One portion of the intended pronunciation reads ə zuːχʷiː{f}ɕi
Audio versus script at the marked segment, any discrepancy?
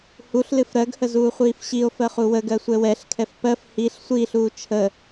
no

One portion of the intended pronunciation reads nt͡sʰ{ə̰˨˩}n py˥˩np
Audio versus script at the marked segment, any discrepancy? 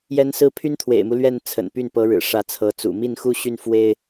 no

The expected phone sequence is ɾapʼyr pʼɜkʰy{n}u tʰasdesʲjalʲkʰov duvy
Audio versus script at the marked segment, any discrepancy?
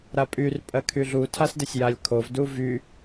yes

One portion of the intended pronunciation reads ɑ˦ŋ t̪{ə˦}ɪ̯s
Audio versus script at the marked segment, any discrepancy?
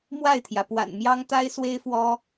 yes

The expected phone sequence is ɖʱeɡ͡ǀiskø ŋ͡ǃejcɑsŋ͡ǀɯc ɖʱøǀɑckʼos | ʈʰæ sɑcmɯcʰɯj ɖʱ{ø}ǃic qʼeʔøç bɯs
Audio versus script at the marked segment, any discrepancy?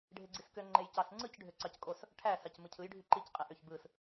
yes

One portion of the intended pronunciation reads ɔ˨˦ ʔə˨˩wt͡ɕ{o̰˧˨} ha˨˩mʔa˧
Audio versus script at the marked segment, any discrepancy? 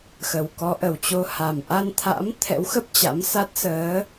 yes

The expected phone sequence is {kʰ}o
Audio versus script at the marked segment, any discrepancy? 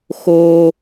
yes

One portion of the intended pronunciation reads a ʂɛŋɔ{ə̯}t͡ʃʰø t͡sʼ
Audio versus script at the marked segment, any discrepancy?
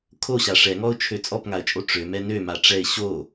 yes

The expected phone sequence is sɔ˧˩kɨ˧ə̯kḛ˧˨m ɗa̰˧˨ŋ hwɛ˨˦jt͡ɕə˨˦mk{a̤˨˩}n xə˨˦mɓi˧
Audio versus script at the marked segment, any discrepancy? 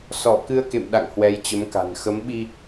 no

